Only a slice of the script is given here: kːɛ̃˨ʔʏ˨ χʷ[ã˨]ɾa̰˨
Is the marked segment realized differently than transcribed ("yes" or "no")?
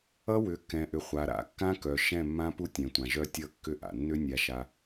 yes